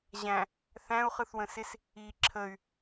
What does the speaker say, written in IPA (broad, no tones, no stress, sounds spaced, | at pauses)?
ʑ æ̃ | θ æ̃ u̯ χ ɯ θ w ə̃ s ɪ s | i ǁʰ ə y̯